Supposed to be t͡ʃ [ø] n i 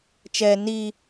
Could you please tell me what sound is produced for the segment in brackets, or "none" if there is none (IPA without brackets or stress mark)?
ɛ